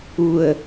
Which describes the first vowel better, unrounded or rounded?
rounded